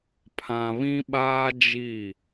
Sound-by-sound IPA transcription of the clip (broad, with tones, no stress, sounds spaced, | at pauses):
pʰ ã˨ β ĩ˦ ɓ aː˦ d͡ʒ i˦˨